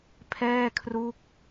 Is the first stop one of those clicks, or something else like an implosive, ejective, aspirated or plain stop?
aspirated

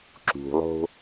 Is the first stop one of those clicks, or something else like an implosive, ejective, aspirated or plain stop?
click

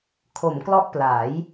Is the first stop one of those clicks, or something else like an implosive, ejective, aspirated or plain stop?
aspirated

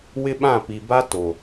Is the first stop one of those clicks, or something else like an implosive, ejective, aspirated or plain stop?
implosive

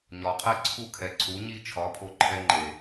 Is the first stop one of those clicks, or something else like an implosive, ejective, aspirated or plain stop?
aspirated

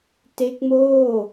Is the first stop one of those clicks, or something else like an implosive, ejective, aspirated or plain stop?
plain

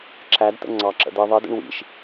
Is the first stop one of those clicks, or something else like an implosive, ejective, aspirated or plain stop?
click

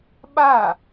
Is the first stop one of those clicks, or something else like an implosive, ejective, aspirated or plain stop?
implosive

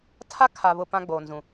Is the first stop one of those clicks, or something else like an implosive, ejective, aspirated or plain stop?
aspirated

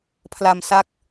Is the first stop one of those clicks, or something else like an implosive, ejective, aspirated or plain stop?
aspirated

